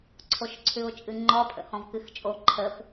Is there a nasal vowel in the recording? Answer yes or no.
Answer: yes